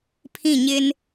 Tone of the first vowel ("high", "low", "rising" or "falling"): falling